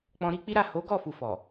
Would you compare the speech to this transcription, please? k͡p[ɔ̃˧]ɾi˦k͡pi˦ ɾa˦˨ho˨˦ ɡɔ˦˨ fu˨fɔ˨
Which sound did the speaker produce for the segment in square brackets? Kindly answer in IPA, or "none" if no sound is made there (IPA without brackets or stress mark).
ɔ̃˧